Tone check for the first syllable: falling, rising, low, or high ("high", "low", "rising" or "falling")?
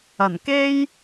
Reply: low